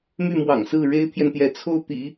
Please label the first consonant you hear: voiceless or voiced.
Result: voiced